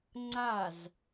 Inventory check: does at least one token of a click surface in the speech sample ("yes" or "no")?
yes